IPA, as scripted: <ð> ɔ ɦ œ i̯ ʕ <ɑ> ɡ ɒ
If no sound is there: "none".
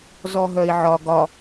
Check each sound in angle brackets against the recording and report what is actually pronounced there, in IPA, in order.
z, ɒ

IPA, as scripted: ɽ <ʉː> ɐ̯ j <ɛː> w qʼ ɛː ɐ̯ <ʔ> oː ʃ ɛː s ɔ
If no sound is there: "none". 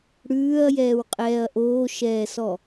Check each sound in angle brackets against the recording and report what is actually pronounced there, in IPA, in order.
ʉː, ɛː, ʔ

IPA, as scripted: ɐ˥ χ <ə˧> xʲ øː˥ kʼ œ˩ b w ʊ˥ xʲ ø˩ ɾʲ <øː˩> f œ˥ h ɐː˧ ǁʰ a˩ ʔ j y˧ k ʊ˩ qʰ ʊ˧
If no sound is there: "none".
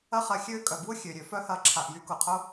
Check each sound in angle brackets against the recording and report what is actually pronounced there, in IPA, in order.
ɐ˧, ø˩

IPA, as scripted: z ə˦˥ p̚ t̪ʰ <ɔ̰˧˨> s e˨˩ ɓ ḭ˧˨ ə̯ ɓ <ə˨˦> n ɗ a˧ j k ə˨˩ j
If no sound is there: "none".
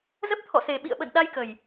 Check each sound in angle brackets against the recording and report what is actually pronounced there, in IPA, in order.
ɔ̰˧˨, ə̰˧˨

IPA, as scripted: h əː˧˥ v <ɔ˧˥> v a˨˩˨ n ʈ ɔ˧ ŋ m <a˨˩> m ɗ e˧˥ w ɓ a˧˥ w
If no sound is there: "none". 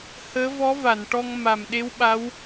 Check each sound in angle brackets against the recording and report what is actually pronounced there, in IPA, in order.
ɔ˧˥, a˨˩

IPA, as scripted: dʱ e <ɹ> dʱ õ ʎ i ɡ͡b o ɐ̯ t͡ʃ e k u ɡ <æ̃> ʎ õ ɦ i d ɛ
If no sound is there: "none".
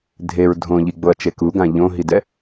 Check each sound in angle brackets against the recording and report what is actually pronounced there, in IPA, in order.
ɹ, ã

